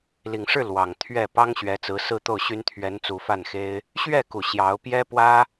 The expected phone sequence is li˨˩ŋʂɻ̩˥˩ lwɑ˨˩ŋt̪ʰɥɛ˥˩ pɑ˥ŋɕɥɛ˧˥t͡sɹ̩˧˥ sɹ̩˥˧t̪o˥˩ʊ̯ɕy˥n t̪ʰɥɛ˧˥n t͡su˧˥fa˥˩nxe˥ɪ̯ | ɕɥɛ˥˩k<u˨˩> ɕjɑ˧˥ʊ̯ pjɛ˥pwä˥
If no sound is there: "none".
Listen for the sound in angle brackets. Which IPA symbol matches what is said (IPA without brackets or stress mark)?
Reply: u˨˩